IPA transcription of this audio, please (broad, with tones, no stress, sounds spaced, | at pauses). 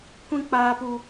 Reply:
kʷ ĩ˦ k͡p aː˦ p u˦